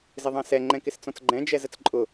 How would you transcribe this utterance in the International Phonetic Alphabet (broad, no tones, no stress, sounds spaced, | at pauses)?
z ɪ ðˤ ɑ̃ s ɛ ŋ͡ǃ ɛ̃ k ɪ s t͡s ɔ̃ t͡s ɡ͡ǃ ɛ̃ d͡ʒ ɛ z ə t͡s ǃʼ ʊ